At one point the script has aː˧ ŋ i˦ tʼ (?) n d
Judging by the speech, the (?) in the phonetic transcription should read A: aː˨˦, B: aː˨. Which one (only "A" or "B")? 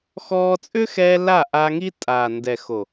B